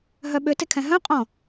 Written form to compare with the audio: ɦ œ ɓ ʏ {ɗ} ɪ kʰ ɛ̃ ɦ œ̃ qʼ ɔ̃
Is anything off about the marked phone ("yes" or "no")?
yes